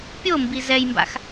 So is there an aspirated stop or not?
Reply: no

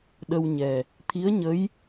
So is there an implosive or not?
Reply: yes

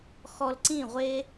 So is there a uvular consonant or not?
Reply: yes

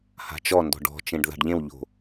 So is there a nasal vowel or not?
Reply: yes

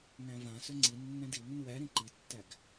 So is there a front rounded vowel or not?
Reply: yes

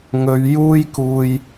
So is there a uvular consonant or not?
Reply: no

